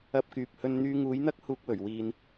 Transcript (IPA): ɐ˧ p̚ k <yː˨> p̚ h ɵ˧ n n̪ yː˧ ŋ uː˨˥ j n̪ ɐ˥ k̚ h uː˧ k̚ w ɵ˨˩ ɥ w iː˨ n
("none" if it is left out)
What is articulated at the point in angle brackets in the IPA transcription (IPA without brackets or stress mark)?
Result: yː˨